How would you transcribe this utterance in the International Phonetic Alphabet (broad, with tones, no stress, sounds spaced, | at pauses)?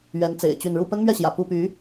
ɥ ɛ˨˦ n t͡s ḛ˨˩ ɪ̯ t͡ɕ y˥˨ n ɻ u˥˨ p ə˦ n m ɥ ɛ˥˨ ɕ j ä̰˨˩ p u˥˨ p y˨˦